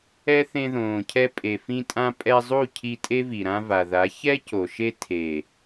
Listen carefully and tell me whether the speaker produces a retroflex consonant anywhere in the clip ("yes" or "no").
no